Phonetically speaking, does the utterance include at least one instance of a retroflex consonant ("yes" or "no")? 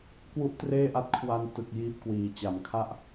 no